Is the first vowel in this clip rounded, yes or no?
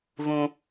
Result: yes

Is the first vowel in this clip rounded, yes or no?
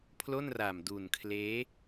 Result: yes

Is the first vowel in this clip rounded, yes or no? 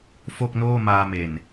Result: yes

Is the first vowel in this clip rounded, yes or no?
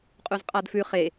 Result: yes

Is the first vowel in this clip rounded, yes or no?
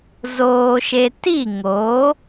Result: yes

